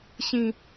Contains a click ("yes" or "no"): no